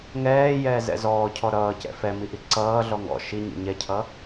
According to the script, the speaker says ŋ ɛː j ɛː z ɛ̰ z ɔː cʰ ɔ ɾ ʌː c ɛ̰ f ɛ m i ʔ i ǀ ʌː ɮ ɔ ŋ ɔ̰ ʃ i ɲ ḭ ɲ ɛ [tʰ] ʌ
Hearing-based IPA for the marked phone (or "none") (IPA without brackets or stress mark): cʰ